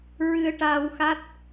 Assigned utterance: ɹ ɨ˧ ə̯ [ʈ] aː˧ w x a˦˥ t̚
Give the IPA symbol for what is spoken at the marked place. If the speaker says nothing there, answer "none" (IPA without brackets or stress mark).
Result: ʈ